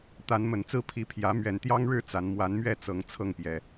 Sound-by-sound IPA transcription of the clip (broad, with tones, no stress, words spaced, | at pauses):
t̪a˨˦nmə˨˩nt͡sɹ̩˥˨ pʰi˨˦pʰjä˨˦ mɥɛ˨˩nt̪jɑ˦ŋɻɻ̩˥˨ t͡sa˨˦n mwa˨˦nmɥɛ˥˨ t͡sɤ˨˦ŋ t͡sʰɤ˥˨ŋpjɛ˨˩